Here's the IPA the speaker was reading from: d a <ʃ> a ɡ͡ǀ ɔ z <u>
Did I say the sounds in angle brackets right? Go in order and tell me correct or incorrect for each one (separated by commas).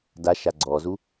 correct, correct